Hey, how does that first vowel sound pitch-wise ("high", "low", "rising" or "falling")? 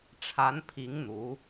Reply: rising